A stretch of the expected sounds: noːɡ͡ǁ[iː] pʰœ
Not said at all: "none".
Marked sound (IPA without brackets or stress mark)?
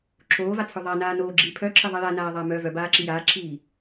iː